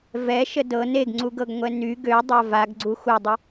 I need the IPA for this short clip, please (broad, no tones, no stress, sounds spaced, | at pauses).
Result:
v ɛ ʃ ə d ɤ n e ɡ ŋ͡ǀ u ɡ ɤ ɡ ŋʷ ɛ n y ɡ ø dˤ a v a ɡ ɡ͡ǀ u x u dˤ ə